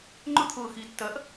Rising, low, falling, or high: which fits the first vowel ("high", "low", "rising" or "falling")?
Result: high